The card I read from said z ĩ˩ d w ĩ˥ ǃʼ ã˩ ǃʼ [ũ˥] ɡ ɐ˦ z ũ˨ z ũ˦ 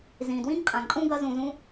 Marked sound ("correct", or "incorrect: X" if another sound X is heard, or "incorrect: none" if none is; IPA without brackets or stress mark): correct